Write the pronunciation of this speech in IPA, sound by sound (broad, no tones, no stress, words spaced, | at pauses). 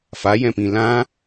fajɛ̃pĩ lã